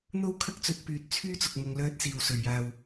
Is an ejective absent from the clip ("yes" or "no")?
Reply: yes